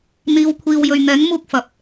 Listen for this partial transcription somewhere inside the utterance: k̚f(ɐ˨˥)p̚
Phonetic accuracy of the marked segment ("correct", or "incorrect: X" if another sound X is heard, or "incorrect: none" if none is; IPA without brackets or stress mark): correct